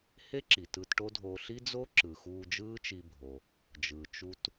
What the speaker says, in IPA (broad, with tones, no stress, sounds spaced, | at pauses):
h e˥ ǁ i˩ t ɯ˧ t ʈ o˥ dʱ oː˧ ɬ i˥ d͡z o˥ ǁ ɯ˩ x uː˧ d͡ʒ ɯː˥ t͡ʃ i˧ bʱ o˩ | d͡ʒ ɯː˩ t͡ʃ u˥ t